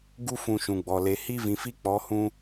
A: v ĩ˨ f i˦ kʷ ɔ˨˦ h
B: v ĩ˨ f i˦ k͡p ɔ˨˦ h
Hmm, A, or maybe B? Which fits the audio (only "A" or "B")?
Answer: B